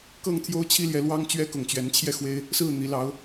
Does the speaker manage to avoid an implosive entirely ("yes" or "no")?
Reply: yes